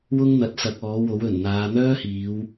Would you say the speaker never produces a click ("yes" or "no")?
yes